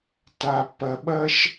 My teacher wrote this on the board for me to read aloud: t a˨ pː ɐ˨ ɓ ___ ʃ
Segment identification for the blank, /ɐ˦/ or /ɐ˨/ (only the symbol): ɐ˦